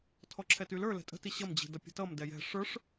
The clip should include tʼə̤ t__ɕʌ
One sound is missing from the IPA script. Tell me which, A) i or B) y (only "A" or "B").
A